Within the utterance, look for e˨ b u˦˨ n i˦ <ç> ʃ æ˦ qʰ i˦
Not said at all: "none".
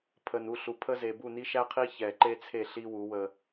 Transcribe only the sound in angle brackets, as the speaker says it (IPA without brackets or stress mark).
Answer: none